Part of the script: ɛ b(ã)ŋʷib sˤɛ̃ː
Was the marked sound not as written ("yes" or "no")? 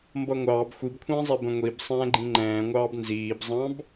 yes